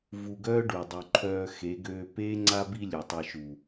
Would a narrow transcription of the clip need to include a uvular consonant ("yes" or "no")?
no